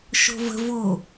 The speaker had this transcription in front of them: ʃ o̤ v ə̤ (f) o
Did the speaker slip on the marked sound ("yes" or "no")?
yes